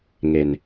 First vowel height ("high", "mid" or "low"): mid